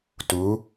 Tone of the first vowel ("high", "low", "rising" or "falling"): rising